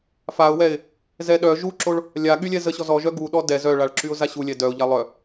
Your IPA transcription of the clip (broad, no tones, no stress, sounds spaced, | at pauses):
f a ʊ̯ w ɛ ɪ̯ | z ɛ ɗ œ ʒ u ǁ o ɭ | lʲ a ɠ y lʲ ɛ z ə ɕ ɔ z ɔ ʒ œ ɡ u ɗ ɔ d ɛ z œ ɭ a ɭ ǁ y ʊ̯ z a ɕ u lʲ ɛ d œ ʊ̯ ʎ a lˠ œ